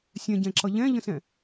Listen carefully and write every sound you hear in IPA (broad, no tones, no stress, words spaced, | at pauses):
sʲɛ̃ɟɛ̃ǁʌ ʎɛ̃ʎə̃sɛ̃